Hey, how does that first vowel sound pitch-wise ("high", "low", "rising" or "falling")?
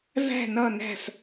falling